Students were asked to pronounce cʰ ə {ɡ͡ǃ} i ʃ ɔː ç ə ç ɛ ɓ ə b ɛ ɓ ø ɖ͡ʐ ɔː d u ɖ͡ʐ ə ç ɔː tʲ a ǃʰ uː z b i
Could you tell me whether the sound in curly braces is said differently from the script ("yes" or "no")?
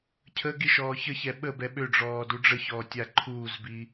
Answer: yes